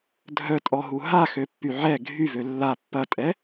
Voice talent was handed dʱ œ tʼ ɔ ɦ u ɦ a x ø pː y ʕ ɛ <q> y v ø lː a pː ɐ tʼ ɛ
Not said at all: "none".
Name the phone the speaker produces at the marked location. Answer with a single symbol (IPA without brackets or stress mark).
ɡʱ